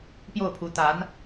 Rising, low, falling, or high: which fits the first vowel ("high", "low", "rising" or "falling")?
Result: falling